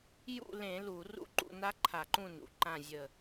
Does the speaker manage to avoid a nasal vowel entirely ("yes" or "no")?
no